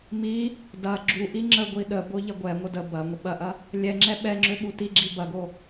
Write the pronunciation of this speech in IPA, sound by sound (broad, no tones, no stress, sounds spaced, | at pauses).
m i | d ɐ ɡ͡ǁ u ʔ i ŋ͡ǁ ə ɡʷ i ɗ ə b o ʎ ɐ ɡʷ ɛ ŋʷ ə d ə b ɐ ŋʷ ə ɓ ɐ ʔ ɐ | lʲ ɛ ŋ͡ǁ ɛ ɓ ɛ ŋ͡ǁ ø ɓ u t i ɡ͡ǁ i b ɐ ɡ o